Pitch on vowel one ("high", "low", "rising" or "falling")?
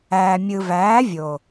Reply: low